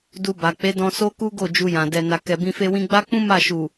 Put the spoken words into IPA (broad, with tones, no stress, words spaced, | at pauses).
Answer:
du˧ba˨ k͡pe˨˦dɔ̃˧so˦ku˦ ɡo˦˨ d͡ʒu˧jã˨ dɛ˨ na˨kɛ˨bĩ˧ fe˧wĩ˧ɡ͡ba˦k͡pũ˦ ma˦˨ ʃu˨